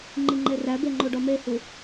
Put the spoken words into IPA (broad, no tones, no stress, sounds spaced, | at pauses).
ŋ͡ǃ i ŋ͡ǃ e r æ b e ŋ͡ǃ o ɖ ɒ m e h u